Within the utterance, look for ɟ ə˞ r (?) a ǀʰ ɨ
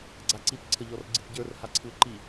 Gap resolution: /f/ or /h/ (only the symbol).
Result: h